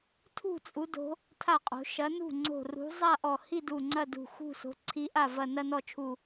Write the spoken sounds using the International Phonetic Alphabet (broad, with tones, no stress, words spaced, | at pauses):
tʰṳ˥˧t͡sʼu˨˦do̤˨˦ | tʰa˥˩qʼo̤˨˦ ʃɐ˨˦nṳ˥˩ŋ͡ǀo̤˧˩rṳ˨˦ zˤa˥˧ʔɔ˧˩ hi˥˧du˧˩ ŋ͡ǀɐ˥˧dṳ˧˩xṳ˥˧so̤˨˦ ǀʰi˨˦ʔa˧˩vɐ˧˩ nɐ˥˧nɔ˥˩t͡ʃʰu˧˩